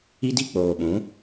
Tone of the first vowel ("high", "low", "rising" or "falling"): high